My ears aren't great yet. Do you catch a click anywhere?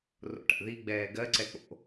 yes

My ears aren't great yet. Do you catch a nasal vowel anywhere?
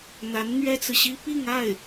no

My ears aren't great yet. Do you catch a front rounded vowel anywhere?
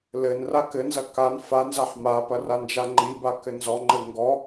no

